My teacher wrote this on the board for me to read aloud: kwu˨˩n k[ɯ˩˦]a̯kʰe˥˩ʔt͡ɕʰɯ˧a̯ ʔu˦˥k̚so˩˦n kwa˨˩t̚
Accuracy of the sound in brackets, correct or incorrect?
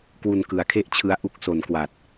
correct